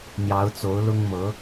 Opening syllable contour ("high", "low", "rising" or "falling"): rising